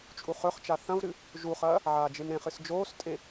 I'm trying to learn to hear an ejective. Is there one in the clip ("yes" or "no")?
yes